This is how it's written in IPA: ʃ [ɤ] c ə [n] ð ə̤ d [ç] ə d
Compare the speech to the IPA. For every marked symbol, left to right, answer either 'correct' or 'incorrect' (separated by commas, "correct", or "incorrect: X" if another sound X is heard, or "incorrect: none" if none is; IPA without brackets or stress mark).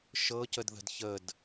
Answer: correct, incorrect: d, correct